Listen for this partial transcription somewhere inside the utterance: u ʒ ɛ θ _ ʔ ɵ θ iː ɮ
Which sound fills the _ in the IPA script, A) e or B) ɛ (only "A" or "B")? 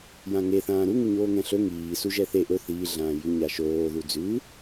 A